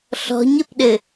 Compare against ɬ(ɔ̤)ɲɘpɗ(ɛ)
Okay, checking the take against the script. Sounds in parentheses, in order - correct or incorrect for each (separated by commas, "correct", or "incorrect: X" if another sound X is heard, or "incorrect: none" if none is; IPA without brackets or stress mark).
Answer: correct, incorrect: ɘ